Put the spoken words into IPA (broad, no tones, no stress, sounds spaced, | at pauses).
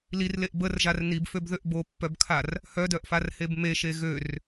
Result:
l i r l e ʔ b ə r ʒ a r n i b f ø b ð ø ʔ b o pː œ b kʰ a r | h œ d œ ʔ f a r h e b m e ʃ e ɣ ø r